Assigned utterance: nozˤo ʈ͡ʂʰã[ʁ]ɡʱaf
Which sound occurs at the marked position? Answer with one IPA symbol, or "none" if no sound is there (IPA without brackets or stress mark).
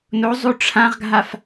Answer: ʁ